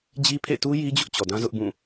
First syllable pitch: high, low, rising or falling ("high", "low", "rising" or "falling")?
high